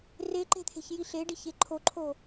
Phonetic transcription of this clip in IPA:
reǃe̤t̪ʰe̤çji ɬeɖiçe ǃʰoǃʰo

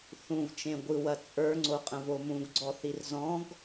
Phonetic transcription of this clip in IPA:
θũvt͡ʃẽ ɡʷɯwɐ t͡sʼə˞ŋ͡ǀoqʼə̃vo mũɡɡ͡ǀɔθir zɔ̃ɡ

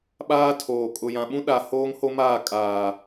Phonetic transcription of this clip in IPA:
ɓaː˦tʰoː˨ kʼʊ˨jã˨ɓũ˦ ɗa˨ hoː˦ŋho˦maː˦˨ kʼaː˨

